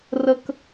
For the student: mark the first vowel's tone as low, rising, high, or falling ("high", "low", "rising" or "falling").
high